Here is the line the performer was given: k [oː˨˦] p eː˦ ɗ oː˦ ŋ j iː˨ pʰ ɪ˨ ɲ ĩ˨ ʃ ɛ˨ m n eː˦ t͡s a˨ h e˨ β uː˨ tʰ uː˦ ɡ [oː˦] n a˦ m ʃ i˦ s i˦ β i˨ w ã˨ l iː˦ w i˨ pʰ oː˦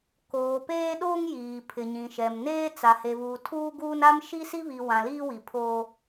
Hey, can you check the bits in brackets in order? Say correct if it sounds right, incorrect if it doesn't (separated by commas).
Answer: incorrect, incorrect